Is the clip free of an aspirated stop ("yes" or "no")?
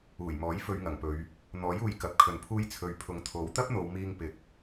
no